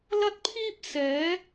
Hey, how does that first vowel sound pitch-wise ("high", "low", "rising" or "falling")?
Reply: high